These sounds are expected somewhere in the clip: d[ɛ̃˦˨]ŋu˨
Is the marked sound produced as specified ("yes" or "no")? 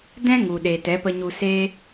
no